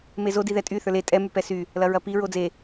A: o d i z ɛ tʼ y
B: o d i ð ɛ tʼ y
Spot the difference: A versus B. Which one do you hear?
B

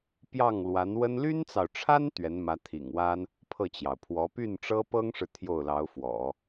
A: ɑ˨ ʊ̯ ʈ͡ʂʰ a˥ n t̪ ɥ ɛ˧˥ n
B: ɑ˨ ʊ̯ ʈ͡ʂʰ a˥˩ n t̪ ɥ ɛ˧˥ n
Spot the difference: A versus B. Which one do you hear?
A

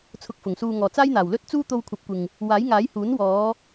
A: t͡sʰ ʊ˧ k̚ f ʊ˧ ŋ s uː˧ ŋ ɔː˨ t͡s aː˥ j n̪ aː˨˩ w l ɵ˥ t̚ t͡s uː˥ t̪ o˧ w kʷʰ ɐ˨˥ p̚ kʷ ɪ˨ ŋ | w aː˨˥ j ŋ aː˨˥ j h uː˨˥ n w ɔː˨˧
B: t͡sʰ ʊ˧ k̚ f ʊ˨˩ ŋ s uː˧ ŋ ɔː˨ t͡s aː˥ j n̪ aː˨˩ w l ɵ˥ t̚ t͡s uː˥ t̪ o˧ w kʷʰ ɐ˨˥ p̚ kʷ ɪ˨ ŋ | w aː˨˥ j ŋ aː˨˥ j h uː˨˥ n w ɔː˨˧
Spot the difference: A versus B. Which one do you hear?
B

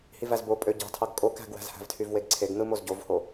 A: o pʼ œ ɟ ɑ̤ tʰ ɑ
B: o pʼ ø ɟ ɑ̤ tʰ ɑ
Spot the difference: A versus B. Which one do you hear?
B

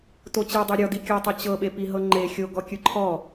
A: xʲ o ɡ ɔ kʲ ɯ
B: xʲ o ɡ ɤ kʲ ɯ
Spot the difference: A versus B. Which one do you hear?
A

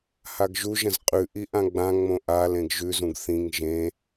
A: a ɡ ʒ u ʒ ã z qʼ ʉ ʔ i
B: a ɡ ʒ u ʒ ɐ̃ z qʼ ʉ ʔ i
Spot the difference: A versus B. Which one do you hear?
B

